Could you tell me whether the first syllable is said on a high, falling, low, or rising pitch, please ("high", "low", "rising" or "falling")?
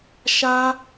high